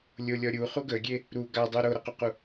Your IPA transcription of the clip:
lʲolʲɔ ɾʲuχu ɡəɡʲe | ɾu ɡadˤu ɾoɾɐququ

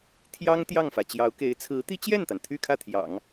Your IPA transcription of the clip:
t̪ʰjɑ˥ŋ t̪jɑ˥˩ŋfä˩ t͡ɕjɑ˧˥ʊ̯ke˧˥ɪ̯ t͡sʰɹ̩˧˥t̪i˥t͡ɕjɛ˥˩nt̪a˩n t̪ʰy˥˧kʰä˥˩t̪ʰjɑ̰˨˩˦ŋ

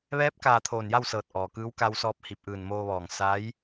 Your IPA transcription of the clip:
ʋɛː˧˥p̚kaː˧˩ t̪ʰoː˧˩nja˥˨wsɤː˧˩t̚ ʔɔː˩kɯː˧˥w ka˧wsɔː˧p̚ hi˧˩p̚ʔɯː˧˩n moː˧ʋɔː˧˩ŋ sa˧˥j

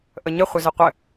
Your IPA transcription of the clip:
ʔəɲə χʷɘzɘqʷɘ

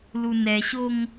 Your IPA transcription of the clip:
lunɛɕoŋ

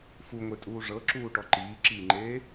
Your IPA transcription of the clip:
fuŋʷetʼuː ʐɤǁuːʈɔ ǃiːǁiːŋ͡ǃeː

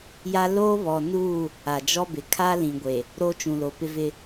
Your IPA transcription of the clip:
ja˦ loː˦βɔ˨nuː˦˨ | a˨d͡ʒɔ˦bɪ˨ kʰa˦lĩ˨ɡʷe˨ | ɾo˦t͡ʃũ˨lo˨ pɪ˦vɪ˦

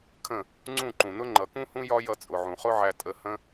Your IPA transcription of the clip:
kʰə̃˦˨ | ŋ͡ǀũ˦˨ ǃũ˨nʊ˦ ŋ͡ǃʌ˨kũ˦hũ˦jɒ˦ jʌ˧t͡sʼʊ˨ʕũ˨ χʊ˦ʕæ˧ tʼə˧hə̃˦

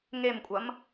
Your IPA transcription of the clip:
ŋemkʷʼɐm

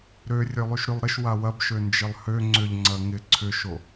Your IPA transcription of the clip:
ɾø rʲølˠyʃɾylˠɾɪʃ wawɐbʃø nd͡ʒɪlˠhø ŋ͡ǀʏʎ ŋ͡ǀɐŋɪ ǀʰʏʃo

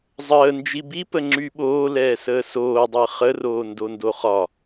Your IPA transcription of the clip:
zˤəː nd͡ʒibipə ŋ͡ǁyɓoː lɛːsəːsoːdˤəː χəroː ndondoχɒ

